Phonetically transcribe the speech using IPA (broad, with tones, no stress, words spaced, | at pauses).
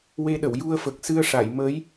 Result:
we˧ɗə˨˩˨w ju˧ə̯fə˨˩k̚ sɨ˧ə̯ʂa˨˩˨jməː˧˥j